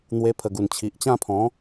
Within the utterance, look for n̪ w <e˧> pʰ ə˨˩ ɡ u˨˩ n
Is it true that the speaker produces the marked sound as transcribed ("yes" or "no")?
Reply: yes